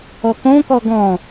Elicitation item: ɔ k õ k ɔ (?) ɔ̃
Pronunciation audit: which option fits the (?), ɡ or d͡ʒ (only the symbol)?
ɡ